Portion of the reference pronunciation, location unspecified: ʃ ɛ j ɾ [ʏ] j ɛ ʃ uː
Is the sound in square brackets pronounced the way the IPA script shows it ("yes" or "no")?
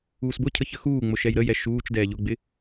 no